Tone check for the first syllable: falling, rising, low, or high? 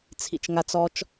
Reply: low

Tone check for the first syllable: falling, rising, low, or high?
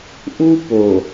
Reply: high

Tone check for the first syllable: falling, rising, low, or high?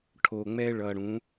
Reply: low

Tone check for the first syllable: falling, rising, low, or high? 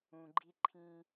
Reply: low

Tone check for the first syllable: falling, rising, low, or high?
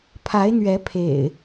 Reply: rising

